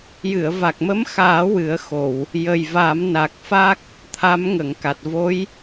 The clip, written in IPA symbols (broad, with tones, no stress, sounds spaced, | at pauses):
j ɨ˨˩˨ ə̯ v a˨˩ k̚ m ə˧˥ m x aː˨˩˦ w ɨ˨˩˦ ə̯ x o˨˩˨ w | j ə˨˩ j v a˨˩˦ m n a˨˩ k̚ f a˦˥ k̚ | t̪ʰ a˧˥ m ŋ ə˨˩˨ ŋ k a˨˩ t̚ v o˧˥ j